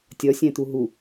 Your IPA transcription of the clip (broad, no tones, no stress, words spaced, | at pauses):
tʲɒsʲæ̃t̪u ɦu